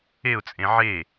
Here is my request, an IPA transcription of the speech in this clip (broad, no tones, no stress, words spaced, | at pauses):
eʊ̯t͡sʼẽ ʕe